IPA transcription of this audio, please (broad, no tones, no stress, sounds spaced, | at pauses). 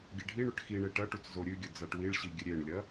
ɡʲ e ɖʱ i ɳ ɵ ʈ x i ɳ e ʈ ɐ ʈ u t͡s z o ɾʲ ʉ ɡʲ ɵ d͡z a ʈ w i ɭ ɕ i ɡʲ ɨ ɾʲ e ɳ lʲ ɐ